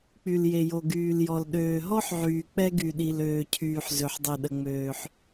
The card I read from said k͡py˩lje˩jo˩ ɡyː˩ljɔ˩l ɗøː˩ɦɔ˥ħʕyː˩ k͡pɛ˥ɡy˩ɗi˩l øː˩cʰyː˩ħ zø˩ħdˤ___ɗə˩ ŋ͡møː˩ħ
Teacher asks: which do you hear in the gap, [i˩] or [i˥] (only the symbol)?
i˩